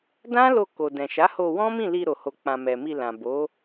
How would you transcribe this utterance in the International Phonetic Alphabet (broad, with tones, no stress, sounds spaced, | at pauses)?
d ã˦ l o˧ k o˨ d ɛ̃˨ ʃ a˨˦ h o˧ w ɔ̃˦ m ĩ˦˨ l i˧ ɾ o˨ h o˨ k͡p ã˨ m ɛ˨ m i˧ l ã˨ b o˨˦